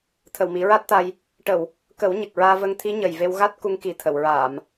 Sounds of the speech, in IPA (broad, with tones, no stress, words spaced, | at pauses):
t̪ʰə˨˩wmi˨˩˦ɹa˦˥t̚t̪a˧j | ʈə˨˩˨w | kə˨˩˦w ɲə˨˩k̚ɹaː˧və˧ŋt̪ʰi˧˥ ɲə˨˩jve˧wɣa˦˥t̚ku˧ŋ ki˨˩t̪ʰə˨˩˨wɹaː˨˩˨m